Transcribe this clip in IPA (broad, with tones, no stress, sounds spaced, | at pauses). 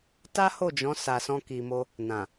t a˦ h o˦˨ d͡ʒ ɔ̃˨˦ s a˧ s ɔ̃˦ k i˧ m o˦ | n ã˨